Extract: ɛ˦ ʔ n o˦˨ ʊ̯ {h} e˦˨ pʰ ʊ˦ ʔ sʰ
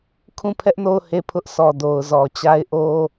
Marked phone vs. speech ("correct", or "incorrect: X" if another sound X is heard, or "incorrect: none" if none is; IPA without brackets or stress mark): correct